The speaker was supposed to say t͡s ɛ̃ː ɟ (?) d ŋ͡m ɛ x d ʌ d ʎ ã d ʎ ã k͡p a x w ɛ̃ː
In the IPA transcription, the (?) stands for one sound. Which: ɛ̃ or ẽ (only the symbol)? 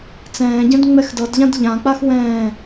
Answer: ɛ̃